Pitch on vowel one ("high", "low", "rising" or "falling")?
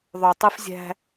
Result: low